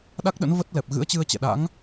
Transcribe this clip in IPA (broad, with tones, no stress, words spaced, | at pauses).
ɗa˦˥k̚ɗə̰˧˥n və˦˥t̚lɛ˨˩p̚ ɣɨ̰˧˥ə̯t͡ɕɨ˧ə̯t͡ɕɛ̰˧˨ɗa̰˧˥ŋ